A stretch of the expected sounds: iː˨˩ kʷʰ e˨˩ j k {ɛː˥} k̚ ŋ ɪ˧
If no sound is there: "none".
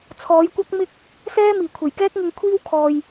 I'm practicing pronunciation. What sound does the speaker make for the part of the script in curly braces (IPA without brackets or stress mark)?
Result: ɛː˥